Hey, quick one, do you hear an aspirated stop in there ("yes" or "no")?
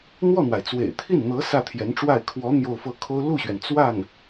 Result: yes